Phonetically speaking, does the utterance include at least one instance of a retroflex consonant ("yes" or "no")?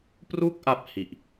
no